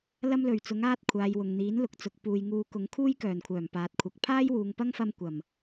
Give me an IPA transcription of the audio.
l ɐ˥ m l ɵ˨˩ ɥ t͡s ʊ˨˥ ŋ aː˥ t̚ kʷʰ aː˨˧ j w ʊ˨ ŋ n̪ iː˨˥ n l ʊ˨ k̚ t͡s ʊ˨ k̚ p uː˨ j ŋ uː˨˧ k ʊ˨˥ ŋ kʰ uː˥ j k œː˨˩ n kʷʰ œː˨˩ m p aː˨ t̚ kʷʰ ɐ˨ k̚ pʰ aː˥ j w uː˨ ŋ p ɐ˥ ŋ f ɐ˧ m kʷ ɐ˨˩ m

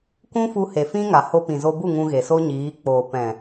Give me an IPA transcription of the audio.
k ũ˦ f u˧ h e˨ f ĩ˦ ŋ a˨ h o˧ p ĩ˨ z o˧ b u˦˨ ŋ ũ˧ ɣ e˨ s o˦ ɲ iː˨˦ k͡p oː˨ p ɛ̃˨

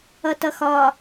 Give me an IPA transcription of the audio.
ʌ t ʌ x ɒ

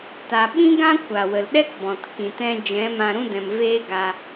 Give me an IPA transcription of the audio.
t a˨ ɓ ĩ˦ ɡ ã˦ kʷ a˨ w ə˨ l ɗ ɛ˦ k b ɔ̃˨ t k ĩ˨ t ɛ̃˧ d͡ʒ ɛ̃˨˦ m ã˧ ɾ ũ˦ d ɛ̃˨ m v eː˦ ɡ a˧

